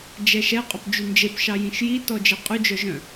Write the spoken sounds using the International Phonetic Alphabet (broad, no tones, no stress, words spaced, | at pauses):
d͡ʒɛʃɛ qʼopd͡ʒynd͡ʒep ʃɑjĩʃji tɔd͡ʒeqʼʉ d͡ʒœʒœ̃